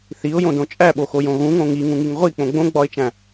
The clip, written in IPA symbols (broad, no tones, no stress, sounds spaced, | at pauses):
θ i ʊ̯ j õ d õ t͡ʃʼ æ ɓ o x o j õ ɣ ũ ŋ õ ŋ i ŋ ũ ŋ i ŋ ʁʷ i k͡p õ ɡ͡b õ ɡ͡b ɒ ɪ̯ t͡ʃ æ̃